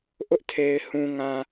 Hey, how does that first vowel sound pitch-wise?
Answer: high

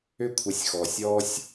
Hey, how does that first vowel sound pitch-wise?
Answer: high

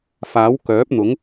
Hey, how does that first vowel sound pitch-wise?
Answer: rising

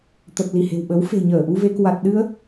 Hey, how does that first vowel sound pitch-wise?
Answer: low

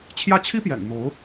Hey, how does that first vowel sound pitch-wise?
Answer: falling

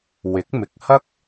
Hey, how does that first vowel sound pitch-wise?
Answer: rising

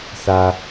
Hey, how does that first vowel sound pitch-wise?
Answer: low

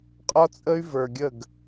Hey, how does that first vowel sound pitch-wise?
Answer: high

